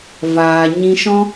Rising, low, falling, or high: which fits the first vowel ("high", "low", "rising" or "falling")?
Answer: low